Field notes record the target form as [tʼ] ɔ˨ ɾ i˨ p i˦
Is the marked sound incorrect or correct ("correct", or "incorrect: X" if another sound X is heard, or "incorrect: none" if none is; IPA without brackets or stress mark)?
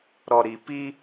incorrect: ɾ